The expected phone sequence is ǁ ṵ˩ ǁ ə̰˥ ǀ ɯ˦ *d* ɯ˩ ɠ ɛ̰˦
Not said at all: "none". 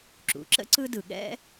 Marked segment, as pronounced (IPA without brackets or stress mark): d